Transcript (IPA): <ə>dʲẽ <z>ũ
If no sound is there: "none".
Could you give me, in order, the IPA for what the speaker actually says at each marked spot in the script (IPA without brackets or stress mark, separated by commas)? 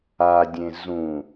a, z